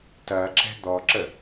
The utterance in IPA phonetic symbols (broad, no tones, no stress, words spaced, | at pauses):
tɐǁɛ̤ d̪ɔǁə